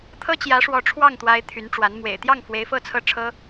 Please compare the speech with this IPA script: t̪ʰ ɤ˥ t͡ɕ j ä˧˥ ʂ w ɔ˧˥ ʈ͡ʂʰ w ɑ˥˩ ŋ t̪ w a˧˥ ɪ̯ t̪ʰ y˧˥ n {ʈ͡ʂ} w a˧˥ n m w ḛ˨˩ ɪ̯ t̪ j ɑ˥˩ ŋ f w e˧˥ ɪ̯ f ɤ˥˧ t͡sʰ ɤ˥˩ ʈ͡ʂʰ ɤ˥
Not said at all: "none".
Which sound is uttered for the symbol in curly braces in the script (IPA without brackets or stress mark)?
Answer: ʈ͡ʂ